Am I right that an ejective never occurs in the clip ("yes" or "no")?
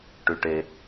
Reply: yes